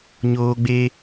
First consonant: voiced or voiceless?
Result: voiced